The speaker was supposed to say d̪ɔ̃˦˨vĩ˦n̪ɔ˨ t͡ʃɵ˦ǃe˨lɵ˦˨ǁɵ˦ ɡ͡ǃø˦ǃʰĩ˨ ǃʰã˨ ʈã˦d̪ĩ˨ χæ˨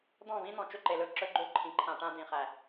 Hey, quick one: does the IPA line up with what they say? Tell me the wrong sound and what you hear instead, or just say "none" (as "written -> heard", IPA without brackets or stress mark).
ɔ˨ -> ɔ̃˨